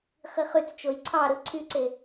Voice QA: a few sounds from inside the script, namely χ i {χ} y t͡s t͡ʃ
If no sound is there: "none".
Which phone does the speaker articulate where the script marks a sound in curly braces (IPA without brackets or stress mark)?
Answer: χ